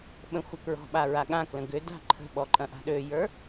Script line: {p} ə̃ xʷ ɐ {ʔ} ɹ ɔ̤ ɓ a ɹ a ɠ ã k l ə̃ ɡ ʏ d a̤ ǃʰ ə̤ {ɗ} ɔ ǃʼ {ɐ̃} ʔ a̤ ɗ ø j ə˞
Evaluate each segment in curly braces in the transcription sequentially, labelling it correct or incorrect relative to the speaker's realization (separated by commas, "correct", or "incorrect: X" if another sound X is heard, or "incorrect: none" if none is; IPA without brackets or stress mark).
incorrect: ɓ, incorrect: k, incorrect: ɓ, correct